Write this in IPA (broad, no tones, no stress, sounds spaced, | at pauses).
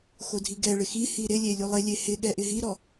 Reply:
x o dʱ i ɡ ɛ ɭ ɪ x i h i ɾ ɪ lʲ e lʲ u lˠ ɪ lʲ e h ɪ ɠ ɛ ʔ ɪ ɦ i ɾ ɔ